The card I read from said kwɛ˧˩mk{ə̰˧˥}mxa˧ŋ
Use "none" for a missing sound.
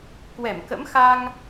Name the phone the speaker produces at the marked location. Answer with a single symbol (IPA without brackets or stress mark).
ə̰˧˥